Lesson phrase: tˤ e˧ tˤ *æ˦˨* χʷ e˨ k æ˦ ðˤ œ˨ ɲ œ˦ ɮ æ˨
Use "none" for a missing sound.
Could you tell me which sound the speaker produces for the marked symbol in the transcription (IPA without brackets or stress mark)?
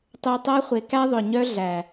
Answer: æ˦